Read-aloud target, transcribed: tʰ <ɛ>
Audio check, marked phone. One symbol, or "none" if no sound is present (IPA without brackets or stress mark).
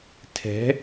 ɛ̤